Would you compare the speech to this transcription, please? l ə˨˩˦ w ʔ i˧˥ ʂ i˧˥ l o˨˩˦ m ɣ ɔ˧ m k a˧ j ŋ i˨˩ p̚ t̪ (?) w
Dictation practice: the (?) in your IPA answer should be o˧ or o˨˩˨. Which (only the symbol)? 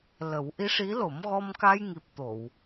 o˨˩˨